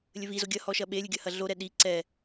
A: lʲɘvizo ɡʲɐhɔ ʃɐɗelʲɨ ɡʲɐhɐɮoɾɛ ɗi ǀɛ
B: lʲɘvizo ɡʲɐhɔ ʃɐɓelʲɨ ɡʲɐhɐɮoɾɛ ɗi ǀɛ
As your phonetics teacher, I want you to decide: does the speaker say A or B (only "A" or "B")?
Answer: B